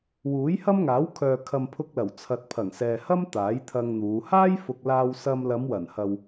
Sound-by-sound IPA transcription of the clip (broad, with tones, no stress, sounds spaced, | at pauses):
w uː˨˥ j h ɐ˥ m ŋ aː˨˥ w kʰ œː˨ kʰ ɐ˨ m pʰ ʊ˧ k̚ l ɐ˨˩ w t͡sʰ ɐ˨ t̚ pʰ ɐ˨˩ ŋ s ɛː˨ h ɐ˥ m t̪ aː˨˥ j t̪ʰ ɐ˧ ŋ n̪ uː˨˧ h aː˥ j f ʊ˨ k̚ l aː˧ w s ɐ˧ m l ɐ˨˧ m w ɐ˨˩ n h ɐ˨ w